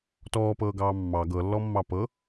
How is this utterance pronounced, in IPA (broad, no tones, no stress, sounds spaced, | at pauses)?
t ɔː p ɤː ɡ ɑː mː ɑ ɡ ɤ lː ɔ mː ɑ p ɤ